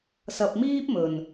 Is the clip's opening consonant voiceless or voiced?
voiceless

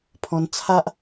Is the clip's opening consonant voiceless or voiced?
voiceless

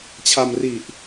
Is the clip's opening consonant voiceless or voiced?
voiceless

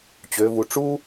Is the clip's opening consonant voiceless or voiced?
voiceless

